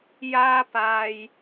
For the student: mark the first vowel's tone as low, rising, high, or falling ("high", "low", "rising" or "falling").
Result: high